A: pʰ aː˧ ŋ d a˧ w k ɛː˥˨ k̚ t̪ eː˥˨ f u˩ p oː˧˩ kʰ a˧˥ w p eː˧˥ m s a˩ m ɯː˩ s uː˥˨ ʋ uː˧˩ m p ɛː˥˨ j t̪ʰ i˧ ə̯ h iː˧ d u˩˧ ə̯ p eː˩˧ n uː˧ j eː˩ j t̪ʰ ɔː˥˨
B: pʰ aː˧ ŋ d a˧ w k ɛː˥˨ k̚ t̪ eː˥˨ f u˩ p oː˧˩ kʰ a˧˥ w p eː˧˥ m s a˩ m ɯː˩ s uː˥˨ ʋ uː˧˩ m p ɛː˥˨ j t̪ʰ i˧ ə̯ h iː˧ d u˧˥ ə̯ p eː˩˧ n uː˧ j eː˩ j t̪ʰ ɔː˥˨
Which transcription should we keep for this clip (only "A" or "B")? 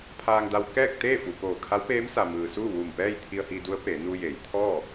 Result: B